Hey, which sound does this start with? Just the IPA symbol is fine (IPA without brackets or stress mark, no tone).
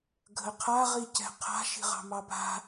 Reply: ɡʱ